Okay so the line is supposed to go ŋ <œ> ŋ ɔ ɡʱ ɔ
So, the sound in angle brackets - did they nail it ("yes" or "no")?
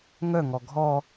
yes